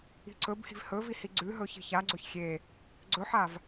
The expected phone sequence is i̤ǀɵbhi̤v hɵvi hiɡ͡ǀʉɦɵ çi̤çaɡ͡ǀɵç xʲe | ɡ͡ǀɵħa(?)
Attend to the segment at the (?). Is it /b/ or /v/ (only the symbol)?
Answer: v